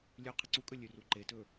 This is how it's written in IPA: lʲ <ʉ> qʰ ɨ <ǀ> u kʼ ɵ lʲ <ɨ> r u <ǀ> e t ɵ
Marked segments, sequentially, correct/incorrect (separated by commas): correct, correct, incorrect, incorrect